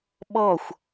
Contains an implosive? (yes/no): yes